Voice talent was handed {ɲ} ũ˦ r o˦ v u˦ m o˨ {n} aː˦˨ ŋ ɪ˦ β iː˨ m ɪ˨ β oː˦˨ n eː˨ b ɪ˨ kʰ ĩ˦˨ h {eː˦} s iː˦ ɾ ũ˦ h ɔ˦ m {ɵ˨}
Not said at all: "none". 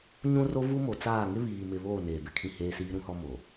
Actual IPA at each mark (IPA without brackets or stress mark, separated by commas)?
ɲ, t͡s, eː˦, o˨